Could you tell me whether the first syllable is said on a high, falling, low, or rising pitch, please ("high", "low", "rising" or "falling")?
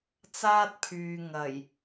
high